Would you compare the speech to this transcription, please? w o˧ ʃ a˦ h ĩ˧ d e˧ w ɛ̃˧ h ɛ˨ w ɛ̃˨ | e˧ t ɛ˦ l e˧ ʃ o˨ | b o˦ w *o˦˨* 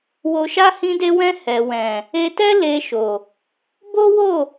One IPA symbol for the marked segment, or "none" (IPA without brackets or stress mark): o˦˨